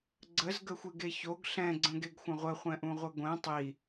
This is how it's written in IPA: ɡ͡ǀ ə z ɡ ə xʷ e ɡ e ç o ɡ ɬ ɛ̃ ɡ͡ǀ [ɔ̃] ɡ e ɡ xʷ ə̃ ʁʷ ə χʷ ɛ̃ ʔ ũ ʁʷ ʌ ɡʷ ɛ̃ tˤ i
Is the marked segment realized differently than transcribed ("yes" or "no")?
yes